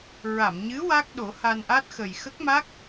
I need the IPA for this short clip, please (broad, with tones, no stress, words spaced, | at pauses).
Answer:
ɹa˨˩˨mɲɨ˧˥ wa˦˥k̚ɗo˨˩˦ ha˧nʔa˦˥t̚xə˨˩j xə˦˥k̚ma˦˥k̚